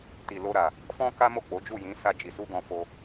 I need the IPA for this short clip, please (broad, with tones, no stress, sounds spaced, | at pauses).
t i˨ l o˧ ɾ a˨ | f ɔ̃˦ k a˦ m o˦˨ k͡p o˨˦ d͡ʒ u˦˨ j ĩ˨˦ s a˧ d͡ʒ i˨ s u˧ ɡ ɔ̃˧ f o˧